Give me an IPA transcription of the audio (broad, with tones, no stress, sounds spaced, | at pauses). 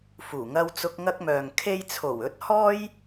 f uː˨˩ ŋ ɐ˧ w t͡s ʊ˧ k̚ ŋ ɐ˥ k̚ m œː˨ ŋ kʰ e˧ j t͡sʰ o˨˩ w ɵ˨˥ t̚ h ɔː˥ j